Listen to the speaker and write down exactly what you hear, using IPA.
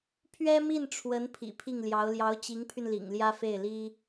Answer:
pʰ ɥ ɛ˥ m i˥˩ n ʈ͡ʂʰ w ə˧˥ n pʰ ḭ˨˩ pʰ i˥˩ ŋ l j ɑ˧˥ ʊ̯ l j ɑ˧˥ ʊ̯ t͡ɕ i˧˥ ŋ pʰ y˧ n l ḭ˨˩ ŋ l j ä˥ f e˥˩ ɪ̯ l i˥

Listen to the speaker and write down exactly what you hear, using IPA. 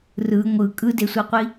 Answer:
r ɯ ŋʷ ɯ kʼ ɯ d e sʷ e qʷ i

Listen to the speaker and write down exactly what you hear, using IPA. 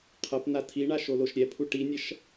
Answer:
qʰ ɐ p n a tʰ i ɳ a ʃ o l o ʃ ɾʲ ɛ pʰ u ʈ i nʲ ɐ ʃ

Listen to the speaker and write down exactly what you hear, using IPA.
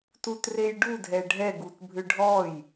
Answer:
t u t r e j ɖ u dʱ ɛ ɖʱ ɛ ɡ u t bʱ ʏ ɖʱ ɔ j

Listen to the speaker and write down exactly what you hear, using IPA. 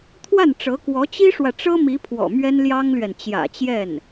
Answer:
t̪ʰ w a˥˩ n ʈ͡ʂ ɤ˧˥ k w ɔ˧˥ t͡ɕ i˥ ʂ w ä˨ ʈ͡ʂ ɤ˥ m i˧˥ pʰ w ɔ̰˨˩ m ɥ ɛ˥ n l j ɑ˥ ŋ l ɥ ɛ˨ n t͡ɕ j ä̰˨˩ t͡ɕ j ɛ˥˩ n

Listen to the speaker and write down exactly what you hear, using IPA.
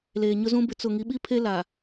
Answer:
l eː˨ ɲ ʊ˦ z ũ˦ b ɪ˨ t͡s ʊ˨ ŋ i˨˦ ɓ i˦ pʰ e˦ l a˨

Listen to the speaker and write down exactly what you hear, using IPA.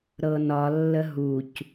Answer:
ɾ ɤ n ɒ lː ə ɦ u c

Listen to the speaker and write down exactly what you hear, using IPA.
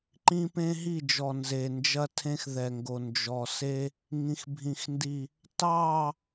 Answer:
ǃ ĩ˦ p ẽ˦ ɦ i˦˨ d͡ʒ ɔ˨ n z e˨ n d͡ʒ ɐ˦ tʰ ẽ˦ x ð ɛ˨ ŋ ɡ o˨ n d͡ʒ ɔ˨ s e˦ | ŋ ĩ˨ x bʱ ĩ˨ x n d i˨ | t ɑː˦˨

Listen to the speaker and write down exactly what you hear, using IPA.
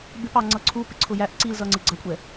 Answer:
b ɪ p ɑ ŋ͡ǀ ʌ ǀʰ u p ɪ ǀʰ ʊ j æ ʔ ǀ i l z ʌ ŋ͡ǀ ɪ ɡ͡ǀ ʌ kʷʼ ɛ

